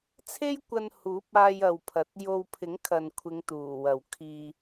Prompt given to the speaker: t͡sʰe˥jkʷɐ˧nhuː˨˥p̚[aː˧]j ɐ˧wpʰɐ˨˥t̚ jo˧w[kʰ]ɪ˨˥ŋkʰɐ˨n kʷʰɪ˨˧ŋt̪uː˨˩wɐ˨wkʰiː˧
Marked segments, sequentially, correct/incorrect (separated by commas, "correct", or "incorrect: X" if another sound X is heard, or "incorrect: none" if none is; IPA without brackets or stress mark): correct, incorrect: pʰ